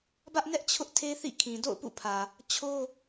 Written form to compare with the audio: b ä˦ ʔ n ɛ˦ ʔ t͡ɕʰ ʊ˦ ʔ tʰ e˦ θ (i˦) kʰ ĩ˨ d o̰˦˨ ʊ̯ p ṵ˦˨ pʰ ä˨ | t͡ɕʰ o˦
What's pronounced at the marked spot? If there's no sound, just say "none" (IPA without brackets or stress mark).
ḭ˦˨